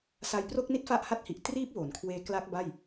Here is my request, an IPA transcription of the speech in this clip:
s a˧ j p r o˥˩ k̚ n i˥˩ t̚ f a˦˥ ʔ h a˥˩ t̚ h i˨˩ ʔ t r iː˦˥ p̚ w o˩˦ n kʰ w eː˧ k l a˦˥ k̚ b a˥˩ j

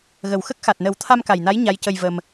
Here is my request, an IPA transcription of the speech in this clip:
ɣ ə˨˩ w x ə˦˥ k̚ x a˨˩ t̚ n ə˨˩˦ w t̪ʰ a˧ m k a˨˩ j n a˧˥ j ɲ a˧˥ j c ə˧ j v ə˧ m

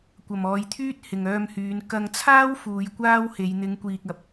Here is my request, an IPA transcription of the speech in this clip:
kʷ ɐ˨ m ɔː˨˧ j t̪ʰ yː˥ t̚ h ɪ˨ ŋ œː˧ m h yː˨˧ n k ɐ˧ ŋ t͡sʰ aː˥ w f uː˨˧ j kʷ aː˥ w h e˨˧ j n̪ ɪ˨˧ ŋ kʷ iː˨ k̚ ɐ˨˥ p̚

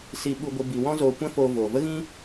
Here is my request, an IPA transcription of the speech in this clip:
s i˧ ɓ u˧ ɡʷ ə˧ b i˧ w ɔ̃˦ z oː˧ kʷ ɛ̃˦ f oː˧ v oː˨ v ə˦ ɣ ĩ˦

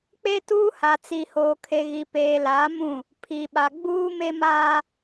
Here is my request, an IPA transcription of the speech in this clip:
k͡p e˦ t uː˦ h a˨ t͡s i˨ h oː˨ kʰ e˨ ɣ i˨ p eː˨ l aː˨˦ m ũ˦˨ | pʰ i˨ ɓ a˨ ɡ͡b uː˦ m e˦ m aː˦

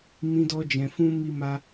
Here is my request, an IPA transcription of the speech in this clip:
m ĩ˧ d ɔ˧ d͡ʒ ɛ̃˨ f ũ˧ m i˧ m a˧

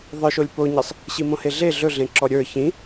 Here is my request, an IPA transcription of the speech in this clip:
ðˤ ə˞ ʃ o lʲ p o ɲ i sˤ | ɕ i m õ h e ɮ e ɮ ɵ ɮ ẽ ǁ ɔ ɾʲ ə˞ ç ĩ

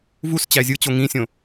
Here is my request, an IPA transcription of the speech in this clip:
v u s t͡ɕ æ zʲ ɯ t͡ɕ o ŋ ĩ sʲ õ

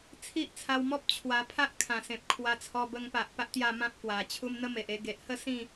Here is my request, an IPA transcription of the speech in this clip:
t͡sʰ i˦ ʔ t͡sʰ a˧ w m ɔ˦ p̚ t͡ɕʰ w a˧ pʰ a˦ ʔ kʰ ã˨˩ s ẽ˨ p̚ kʰ w a˧ t͡sʰ ɔ˧ b ə˧ ŋ p a˨ ʔ p a˦ ʔ t̪ j a˥˧ m ã˦ p̚ k w a˨˩ t͡ɕʰ u˦ m n̪ ə˦ m e˨ ʔ e˧ ɡ e˨ ʔ h ə˥˧ s ĩ˥˧

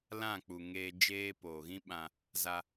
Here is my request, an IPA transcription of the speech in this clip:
l ã˦˨ k͡p u˨ ŋ eː˧ d͡ʒ eː˧ p oː˨ ɣ ĩ˦ ɓ ã˧ | z a˧

